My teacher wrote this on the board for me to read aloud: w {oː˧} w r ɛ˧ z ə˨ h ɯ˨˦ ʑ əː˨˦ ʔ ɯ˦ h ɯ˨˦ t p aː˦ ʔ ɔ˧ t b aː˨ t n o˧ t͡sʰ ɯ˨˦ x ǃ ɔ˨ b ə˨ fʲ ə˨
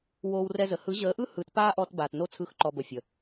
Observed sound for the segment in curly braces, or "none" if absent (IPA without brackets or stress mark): oː˧